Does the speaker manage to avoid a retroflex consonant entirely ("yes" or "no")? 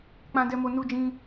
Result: yes